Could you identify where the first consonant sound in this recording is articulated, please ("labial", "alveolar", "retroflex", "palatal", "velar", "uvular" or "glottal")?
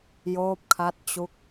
palatal